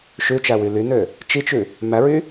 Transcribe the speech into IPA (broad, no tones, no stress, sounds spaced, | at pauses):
ʃ ʉ t͡ʃ æ w y l y n ø | t͡ʃ i t͡ʃ ʉ | m æ ɹ y